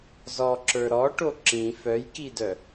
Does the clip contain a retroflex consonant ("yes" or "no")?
yes